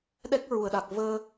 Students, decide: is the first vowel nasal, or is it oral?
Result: oral